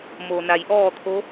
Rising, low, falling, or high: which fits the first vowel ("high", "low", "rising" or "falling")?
low